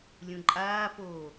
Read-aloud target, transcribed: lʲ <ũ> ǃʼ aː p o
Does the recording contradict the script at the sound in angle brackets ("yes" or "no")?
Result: no